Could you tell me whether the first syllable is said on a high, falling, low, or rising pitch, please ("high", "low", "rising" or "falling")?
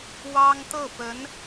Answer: high